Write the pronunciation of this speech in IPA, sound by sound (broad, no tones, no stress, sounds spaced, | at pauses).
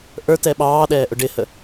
ʔ ə˞ t ɛ ɓ ɑː ɗ ɛː ʔ ʊ ɖ ɪ h ə